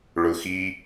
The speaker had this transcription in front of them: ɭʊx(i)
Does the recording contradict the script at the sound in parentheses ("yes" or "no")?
no